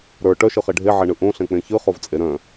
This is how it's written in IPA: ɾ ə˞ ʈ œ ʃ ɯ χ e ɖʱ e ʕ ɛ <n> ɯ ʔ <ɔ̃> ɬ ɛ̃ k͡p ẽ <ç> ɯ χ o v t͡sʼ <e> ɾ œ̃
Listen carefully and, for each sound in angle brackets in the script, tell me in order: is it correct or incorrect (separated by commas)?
incorrect, incorrect, correct, correct